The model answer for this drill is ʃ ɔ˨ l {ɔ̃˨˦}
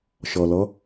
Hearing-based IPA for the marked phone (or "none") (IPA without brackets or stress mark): ɔ˨˦